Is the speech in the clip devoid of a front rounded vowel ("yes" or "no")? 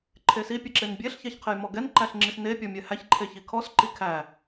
yes